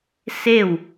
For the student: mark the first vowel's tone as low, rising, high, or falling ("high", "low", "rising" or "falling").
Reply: falling